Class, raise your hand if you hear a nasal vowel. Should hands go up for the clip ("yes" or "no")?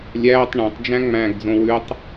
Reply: yes